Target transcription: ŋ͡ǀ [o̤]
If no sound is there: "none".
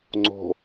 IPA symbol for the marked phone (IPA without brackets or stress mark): o̤